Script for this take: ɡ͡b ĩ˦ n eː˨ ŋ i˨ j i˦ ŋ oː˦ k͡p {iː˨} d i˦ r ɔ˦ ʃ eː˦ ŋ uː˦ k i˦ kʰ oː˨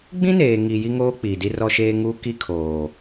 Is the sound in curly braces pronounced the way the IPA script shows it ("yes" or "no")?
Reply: yes